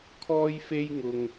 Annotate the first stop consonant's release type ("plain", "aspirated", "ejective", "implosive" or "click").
aspirated